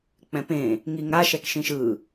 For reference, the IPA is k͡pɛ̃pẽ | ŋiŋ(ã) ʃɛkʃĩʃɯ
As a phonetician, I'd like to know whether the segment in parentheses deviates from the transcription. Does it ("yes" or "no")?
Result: yes